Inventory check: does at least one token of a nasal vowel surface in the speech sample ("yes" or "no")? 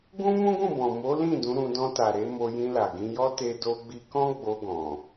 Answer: yes